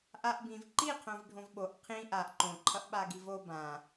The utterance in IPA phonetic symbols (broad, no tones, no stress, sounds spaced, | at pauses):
ʔ a ʔ b ĩ v ǃ i qʰ õ v ɖʱ õ v ɓ o ʔ qʰ ĩ ʔ a ʔ ǃ õ ǃʰ ʌ ʔ ɓ a ɡ i v o b ã